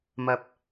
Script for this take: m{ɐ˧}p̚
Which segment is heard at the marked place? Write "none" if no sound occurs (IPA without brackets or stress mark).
ɐ˧